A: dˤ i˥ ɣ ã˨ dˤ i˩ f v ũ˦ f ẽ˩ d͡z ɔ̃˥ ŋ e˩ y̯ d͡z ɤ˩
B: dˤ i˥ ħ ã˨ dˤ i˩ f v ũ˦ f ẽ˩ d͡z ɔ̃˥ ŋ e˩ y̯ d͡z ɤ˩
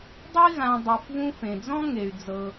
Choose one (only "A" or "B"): A